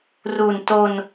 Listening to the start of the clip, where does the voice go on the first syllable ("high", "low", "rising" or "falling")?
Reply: low